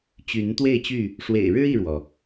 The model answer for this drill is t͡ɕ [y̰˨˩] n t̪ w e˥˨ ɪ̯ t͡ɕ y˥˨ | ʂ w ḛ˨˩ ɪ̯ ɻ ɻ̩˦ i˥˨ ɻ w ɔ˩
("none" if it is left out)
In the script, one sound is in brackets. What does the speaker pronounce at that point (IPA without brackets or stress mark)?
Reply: y˨˦